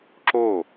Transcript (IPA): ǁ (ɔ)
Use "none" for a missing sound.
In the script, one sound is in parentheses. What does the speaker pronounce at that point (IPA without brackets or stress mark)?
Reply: o